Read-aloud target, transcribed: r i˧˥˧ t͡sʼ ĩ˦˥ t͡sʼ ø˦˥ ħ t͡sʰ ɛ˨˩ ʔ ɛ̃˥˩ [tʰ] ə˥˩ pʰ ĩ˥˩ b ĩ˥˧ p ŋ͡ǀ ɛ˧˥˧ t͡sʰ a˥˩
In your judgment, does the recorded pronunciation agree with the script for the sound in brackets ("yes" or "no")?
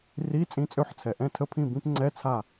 yes